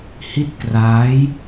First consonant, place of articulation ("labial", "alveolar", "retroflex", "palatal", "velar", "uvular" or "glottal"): glottal